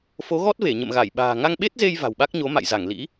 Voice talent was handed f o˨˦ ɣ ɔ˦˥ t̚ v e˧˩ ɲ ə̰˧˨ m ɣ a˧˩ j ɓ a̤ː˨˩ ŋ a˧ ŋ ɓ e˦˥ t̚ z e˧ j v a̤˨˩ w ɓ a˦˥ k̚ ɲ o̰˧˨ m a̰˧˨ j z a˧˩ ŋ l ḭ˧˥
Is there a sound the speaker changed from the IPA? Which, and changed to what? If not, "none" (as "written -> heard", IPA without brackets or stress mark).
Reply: o̰˧˨ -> o˨˦